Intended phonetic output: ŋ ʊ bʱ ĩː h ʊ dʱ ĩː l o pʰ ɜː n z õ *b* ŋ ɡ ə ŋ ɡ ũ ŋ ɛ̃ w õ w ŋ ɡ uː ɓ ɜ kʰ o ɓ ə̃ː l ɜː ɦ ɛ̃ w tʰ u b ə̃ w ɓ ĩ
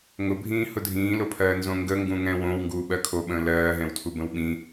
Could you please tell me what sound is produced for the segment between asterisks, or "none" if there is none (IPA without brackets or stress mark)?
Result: none